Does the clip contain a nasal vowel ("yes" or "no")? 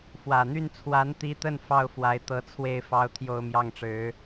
no